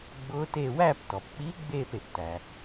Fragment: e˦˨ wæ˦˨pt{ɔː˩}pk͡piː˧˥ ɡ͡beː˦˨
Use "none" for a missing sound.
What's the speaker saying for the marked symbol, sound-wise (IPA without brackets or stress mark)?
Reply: ɔ˩